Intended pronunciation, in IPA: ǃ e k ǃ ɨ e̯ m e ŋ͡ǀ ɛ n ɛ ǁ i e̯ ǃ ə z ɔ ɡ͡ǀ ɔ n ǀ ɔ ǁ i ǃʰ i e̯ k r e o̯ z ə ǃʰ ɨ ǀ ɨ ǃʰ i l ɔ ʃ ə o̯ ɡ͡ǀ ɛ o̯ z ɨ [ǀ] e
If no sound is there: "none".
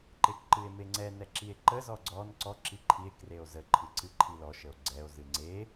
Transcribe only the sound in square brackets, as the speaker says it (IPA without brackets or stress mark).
ŋ͡ǀ